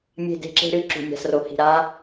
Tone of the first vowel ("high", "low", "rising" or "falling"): falling